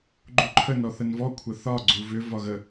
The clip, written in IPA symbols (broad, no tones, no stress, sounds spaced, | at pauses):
ɡ͡ǃ u ǃʰ ə n ɔ θ ə n v ɔ kʷʰ ə θ ɒ ɡ͡ǀ u v ʏ v ɒ ɣ ə